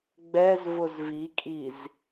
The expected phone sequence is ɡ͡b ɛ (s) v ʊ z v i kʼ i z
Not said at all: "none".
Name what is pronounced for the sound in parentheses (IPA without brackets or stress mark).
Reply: z